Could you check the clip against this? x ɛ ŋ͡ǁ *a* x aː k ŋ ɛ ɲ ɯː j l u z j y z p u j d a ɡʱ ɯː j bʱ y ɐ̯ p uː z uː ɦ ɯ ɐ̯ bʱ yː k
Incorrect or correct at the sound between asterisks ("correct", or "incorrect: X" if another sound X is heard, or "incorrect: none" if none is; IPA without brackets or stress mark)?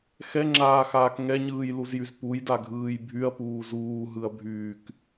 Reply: incorrect: aː